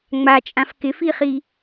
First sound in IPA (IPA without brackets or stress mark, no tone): ŋ͡m